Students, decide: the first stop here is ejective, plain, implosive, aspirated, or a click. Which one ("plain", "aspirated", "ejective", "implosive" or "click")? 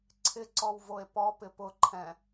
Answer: click